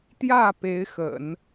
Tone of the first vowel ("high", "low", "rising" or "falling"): falling